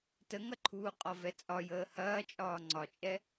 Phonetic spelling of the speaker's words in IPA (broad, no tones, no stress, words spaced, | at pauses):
təŋɐǃʰuː qʼɒvɛt͡sʼɒ jəːhɐː t͡ʃʼɒːŋ͡ǀɒt͡ʃʼɛ